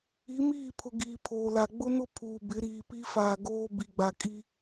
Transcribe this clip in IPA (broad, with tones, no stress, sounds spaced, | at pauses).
i˨˦ m iː˦˨ pʰ ʊ˨ ɡ iː˨ pʰ oː˨ l a˨ ɡ͡b ʊ˦ n ʊ˦ pʰ uː˨ b ɪ˨˦ ɾ iː˨ p i˦ f aː˨ ɡ oː˦ b i˨ ɡ͡b a˨ kʼ i˦